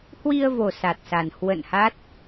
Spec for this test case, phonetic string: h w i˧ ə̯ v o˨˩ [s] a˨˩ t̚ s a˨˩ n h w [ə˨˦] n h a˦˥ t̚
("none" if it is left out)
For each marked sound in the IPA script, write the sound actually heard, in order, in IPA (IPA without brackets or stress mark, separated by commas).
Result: s, ə̰˧˨